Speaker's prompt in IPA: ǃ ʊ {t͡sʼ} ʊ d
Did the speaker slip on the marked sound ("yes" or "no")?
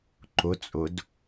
no